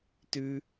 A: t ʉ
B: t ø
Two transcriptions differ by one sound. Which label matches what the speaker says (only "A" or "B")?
A